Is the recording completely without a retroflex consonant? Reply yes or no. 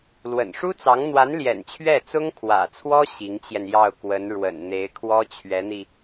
no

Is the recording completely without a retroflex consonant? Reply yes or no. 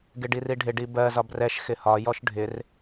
no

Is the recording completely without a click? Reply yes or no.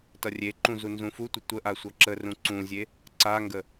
no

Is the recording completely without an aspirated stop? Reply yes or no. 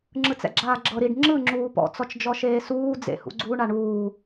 yes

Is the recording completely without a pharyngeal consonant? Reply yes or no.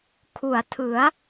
yes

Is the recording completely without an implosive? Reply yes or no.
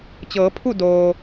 yes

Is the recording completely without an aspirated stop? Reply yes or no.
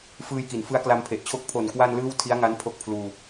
no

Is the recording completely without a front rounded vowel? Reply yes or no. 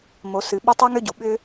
no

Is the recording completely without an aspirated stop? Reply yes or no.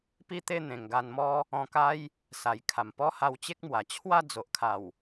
no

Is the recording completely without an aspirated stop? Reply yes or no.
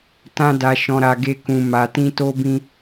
yes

